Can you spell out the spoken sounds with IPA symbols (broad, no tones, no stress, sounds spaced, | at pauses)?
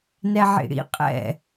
n ɛ ʕ ḭ ɽ ḭ qʼ ɛ̰